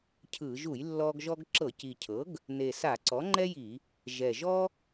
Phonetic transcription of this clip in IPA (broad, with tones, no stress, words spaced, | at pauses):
cʰɯ˧˩˧ ʒu˧˩˧jlːɔ˧ɡ ʒɔ˧ɡǁɤ˧˩˧ci˨˩cʰɤ˩˥ɡ | ne˨˩ sa˧˩˧ ǀɔ˩˥ŋ͡ǃɛ˥ji˧˩˧ | ʒɛ˨˩ʒɔ˥